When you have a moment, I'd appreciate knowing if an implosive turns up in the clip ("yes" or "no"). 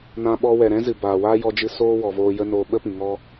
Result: yes